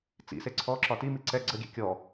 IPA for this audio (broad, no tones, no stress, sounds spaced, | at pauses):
t͡s ḭ s e ǀʰ ɔ ǁ ɒ t i m i ǀ ɛ ɡ͡ǀ ə ɡʲ ɛ̰ kʲ ɔ